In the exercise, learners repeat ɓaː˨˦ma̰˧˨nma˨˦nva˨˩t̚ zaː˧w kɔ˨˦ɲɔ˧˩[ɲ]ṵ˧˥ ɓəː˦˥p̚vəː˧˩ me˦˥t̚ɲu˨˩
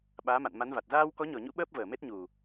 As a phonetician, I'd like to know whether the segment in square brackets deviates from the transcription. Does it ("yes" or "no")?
no